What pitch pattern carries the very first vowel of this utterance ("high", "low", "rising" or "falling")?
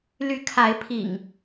rising